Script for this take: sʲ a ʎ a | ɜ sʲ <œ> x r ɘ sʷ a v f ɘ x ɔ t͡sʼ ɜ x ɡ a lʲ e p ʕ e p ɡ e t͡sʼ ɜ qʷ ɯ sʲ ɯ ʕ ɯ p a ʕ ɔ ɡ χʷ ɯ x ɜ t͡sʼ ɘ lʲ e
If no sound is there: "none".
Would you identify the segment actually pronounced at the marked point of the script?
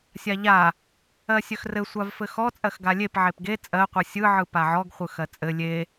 œ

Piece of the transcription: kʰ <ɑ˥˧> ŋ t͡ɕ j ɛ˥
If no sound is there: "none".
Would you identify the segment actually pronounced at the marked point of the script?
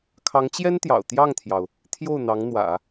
ɑ˧˥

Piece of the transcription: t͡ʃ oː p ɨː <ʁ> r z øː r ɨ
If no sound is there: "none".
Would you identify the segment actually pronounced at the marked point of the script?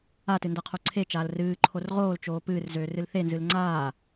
none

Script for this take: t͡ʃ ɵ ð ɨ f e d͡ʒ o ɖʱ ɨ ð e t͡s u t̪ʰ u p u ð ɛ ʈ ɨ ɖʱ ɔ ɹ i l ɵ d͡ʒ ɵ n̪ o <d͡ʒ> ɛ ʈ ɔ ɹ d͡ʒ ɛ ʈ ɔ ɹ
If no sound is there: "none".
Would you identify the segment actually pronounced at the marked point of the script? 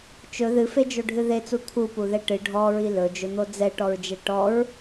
d͡z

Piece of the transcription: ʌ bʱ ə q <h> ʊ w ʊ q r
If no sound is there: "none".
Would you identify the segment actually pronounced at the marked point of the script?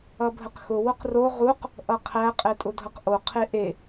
x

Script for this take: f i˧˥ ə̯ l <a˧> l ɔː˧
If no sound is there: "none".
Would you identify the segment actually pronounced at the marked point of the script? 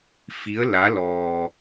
a˧˥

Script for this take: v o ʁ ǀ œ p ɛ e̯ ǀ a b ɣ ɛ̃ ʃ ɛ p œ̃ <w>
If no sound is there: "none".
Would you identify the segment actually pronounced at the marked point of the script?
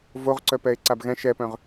ʁ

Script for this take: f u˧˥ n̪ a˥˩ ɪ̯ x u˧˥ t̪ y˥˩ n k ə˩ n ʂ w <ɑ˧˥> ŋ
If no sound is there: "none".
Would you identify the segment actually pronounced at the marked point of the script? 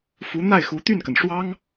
ɑ˥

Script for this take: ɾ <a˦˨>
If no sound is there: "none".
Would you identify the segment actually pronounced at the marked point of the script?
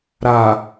a˨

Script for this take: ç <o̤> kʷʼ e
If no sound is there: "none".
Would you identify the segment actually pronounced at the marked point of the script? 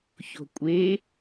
o̤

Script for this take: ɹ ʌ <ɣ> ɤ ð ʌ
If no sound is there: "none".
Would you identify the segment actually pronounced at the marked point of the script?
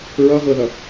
ɣ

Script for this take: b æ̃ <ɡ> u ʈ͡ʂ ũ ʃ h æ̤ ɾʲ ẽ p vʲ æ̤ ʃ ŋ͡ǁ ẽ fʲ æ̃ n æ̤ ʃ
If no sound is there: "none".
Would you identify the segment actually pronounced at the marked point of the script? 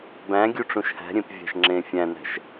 ɡʲ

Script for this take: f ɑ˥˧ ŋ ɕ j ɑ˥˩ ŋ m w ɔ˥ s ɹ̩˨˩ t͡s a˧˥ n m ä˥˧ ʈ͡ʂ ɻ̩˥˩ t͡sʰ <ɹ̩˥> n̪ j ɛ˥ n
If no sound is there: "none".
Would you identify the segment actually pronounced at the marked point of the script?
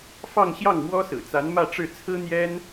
ɹ̩˥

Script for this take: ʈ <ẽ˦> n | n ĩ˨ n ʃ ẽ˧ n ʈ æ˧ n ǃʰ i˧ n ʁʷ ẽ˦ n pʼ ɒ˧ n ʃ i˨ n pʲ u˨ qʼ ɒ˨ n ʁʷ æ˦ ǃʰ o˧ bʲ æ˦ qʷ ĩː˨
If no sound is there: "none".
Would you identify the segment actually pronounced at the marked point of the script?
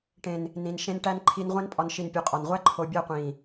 ẽ˨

